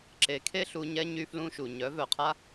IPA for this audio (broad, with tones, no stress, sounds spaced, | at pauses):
ǁ e˨˦ kʰ e˦ ɬ u˧ ɲ ɛ˦ ɲ y˦ f l ũ˦ ʃ u˨ ɲ œ˨˦ v œ˨ qʰ a˦